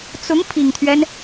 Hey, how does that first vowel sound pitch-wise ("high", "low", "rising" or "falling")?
rising